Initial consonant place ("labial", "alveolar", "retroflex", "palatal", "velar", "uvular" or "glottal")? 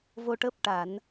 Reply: labial